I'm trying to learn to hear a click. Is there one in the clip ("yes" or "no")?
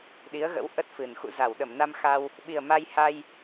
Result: no